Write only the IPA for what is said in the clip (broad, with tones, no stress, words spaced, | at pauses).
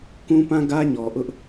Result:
kũ˦pã˦ ɡä˦ɲɔ˨ʔʊ˦ʔ